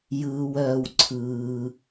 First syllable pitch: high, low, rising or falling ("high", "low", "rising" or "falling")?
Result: low